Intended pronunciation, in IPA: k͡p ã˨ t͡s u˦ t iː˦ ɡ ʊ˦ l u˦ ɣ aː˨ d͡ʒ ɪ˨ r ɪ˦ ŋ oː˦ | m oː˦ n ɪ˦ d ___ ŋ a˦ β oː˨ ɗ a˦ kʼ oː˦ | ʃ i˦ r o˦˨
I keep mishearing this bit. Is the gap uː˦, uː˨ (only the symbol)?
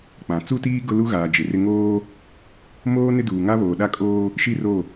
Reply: uː˨